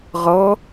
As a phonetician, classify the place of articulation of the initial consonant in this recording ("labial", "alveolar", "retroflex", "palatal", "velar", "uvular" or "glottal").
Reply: uvular